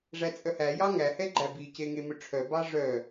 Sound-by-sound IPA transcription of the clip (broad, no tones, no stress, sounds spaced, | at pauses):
ʐ æ t͡sʼ œ h æ j ɑ ŋ æ h ɛ ɡ͡ǃ æ b i c e ŋ e m ɵ ʈ͡ʂʰ œ b ɑ ʐ œ